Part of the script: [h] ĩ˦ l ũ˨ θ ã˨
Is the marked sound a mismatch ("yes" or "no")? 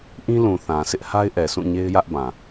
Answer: yes